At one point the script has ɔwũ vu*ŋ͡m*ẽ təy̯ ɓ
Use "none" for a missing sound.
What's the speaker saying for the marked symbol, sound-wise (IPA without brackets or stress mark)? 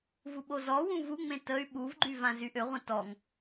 ŋ͡m